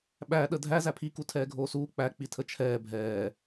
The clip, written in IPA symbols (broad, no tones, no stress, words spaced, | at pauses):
ɓæɗə dʱæ zæpʰiku tʰɛːɡʱoːsuː k͡pæk͡pitʰə t͡ʃʰɛː bʱɛː